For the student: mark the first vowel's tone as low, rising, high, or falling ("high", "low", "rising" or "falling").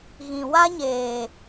low